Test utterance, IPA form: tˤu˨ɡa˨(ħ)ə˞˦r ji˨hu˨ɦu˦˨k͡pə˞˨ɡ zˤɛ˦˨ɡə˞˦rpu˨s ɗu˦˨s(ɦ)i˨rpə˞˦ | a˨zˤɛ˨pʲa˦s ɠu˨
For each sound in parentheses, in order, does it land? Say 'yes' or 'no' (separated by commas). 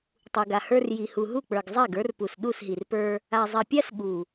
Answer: no, yes